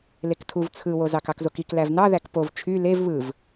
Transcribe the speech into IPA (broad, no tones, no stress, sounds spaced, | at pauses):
l e k tʰ u v t͡sʰ ɯ w o z ɑ k ɑ k z o k i k l æ v n ɑ ð æ k p o v t͡ʃʰ y l e v β ɯ v